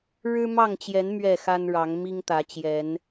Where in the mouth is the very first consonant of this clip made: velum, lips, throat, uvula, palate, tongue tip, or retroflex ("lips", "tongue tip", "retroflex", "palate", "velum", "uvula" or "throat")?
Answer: retroflex